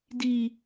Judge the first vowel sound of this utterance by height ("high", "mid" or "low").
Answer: high